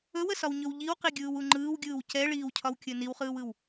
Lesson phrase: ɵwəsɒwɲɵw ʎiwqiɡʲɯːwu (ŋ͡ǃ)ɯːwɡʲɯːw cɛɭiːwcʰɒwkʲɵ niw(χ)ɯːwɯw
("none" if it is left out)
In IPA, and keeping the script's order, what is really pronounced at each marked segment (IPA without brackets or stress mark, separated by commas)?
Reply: ŋ͡ǃ, χ